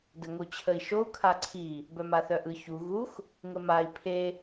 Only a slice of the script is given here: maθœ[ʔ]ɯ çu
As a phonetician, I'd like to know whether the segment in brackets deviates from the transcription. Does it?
no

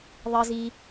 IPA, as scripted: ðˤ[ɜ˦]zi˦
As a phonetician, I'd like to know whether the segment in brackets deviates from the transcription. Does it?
no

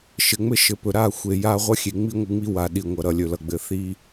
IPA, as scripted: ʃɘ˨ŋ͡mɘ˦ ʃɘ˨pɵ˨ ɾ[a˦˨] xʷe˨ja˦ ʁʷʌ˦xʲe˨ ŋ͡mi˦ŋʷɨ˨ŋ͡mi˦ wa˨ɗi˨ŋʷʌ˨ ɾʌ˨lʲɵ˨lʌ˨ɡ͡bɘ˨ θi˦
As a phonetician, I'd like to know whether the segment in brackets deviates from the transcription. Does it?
no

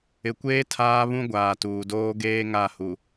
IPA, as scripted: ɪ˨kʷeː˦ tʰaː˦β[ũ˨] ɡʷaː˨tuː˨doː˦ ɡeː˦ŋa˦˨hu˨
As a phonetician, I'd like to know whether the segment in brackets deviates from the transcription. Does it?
yes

